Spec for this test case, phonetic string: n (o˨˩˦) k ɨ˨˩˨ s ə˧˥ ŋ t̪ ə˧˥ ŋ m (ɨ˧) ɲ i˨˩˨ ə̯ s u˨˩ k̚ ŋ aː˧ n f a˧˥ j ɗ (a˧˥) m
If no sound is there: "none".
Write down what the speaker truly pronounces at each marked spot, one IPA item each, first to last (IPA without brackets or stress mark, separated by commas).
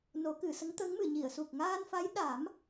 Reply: o˨˩˦, ɨ˨˩˨, a˨˩˦